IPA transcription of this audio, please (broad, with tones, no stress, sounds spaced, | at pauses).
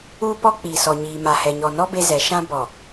uː˦ p ɔ˦ k͡p iː˨ s ɔ˨ ɲ iː˨ m a˨ h ɛ˨ ɲ ɔ˨ n ɔ˦ b e˦ z ɛ˨˦ ʃ ã˦ b ɔ˨